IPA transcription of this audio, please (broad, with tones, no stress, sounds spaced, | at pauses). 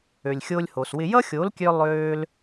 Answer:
ø˨ lʲ xʲ o˧ lʲ h o˨ s w ɪ˧ j ʌ˦ xʲ o˨˦ l kʲ ø˧ lˠ øː˧ l